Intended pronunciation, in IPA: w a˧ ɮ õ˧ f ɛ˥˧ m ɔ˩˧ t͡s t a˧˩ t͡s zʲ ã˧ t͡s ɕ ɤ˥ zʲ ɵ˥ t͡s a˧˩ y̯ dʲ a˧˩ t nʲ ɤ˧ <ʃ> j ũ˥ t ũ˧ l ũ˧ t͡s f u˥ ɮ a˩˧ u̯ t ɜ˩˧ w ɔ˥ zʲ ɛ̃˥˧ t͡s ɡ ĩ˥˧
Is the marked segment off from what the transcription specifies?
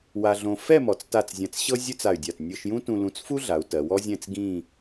no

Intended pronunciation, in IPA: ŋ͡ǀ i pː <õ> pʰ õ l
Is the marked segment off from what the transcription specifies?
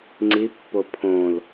yes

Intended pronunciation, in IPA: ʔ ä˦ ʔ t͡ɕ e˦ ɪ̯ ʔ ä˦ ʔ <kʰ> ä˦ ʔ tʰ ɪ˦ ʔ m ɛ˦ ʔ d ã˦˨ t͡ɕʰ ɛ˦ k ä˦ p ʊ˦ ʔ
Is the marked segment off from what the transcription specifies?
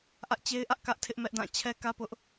yes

